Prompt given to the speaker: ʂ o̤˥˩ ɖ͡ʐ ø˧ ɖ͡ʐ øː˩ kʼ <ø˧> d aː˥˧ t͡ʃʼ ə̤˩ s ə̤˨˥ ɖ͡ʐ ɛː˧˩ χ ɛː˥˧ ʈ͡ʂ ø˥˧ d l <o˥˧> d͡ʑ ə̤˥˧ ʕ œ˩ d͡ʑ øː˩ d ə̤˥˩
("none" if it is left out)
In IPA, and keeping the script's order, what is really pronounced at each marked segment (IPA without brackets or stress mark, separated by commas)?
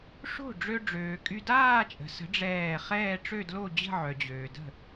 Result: y˧, o˥˧